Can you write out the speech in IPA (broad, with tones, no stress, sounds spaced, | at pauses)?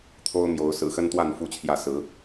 t̪ʰ o˦ ʊ̯ m j o˨˦ ʊ̯ s ɹ̩˨˩ x ə˦ n t̪ w a˥˨ n f u˦ t͡ɕʰ j ä˥˨ s ɹ̩˨˦